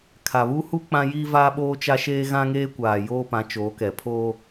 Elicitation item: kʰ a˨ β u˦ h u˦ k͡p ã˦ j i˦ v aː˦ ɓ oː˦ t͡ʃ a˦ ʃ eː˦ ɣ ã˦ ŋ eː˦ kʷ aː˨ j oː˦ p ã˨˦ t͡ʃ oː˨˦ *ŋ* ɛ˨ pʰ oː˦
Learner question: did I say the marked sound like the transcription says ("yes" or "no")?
no